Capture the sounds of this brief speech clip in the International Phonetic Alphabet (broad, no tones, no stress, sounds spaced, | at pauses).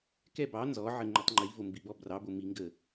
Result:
k ɛ b ɑ n z ɔ ʕ ə ŋ͡ǃ ɛ tˤ ŋ͡ǃ i v o m b i b ɔ b r ɑ b o m i ŋ ɡ ə